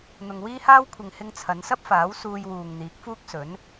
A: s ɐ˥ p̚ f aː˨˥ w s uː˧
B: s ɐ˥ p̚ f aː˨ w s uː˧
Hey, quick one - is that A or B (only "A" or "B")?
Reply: A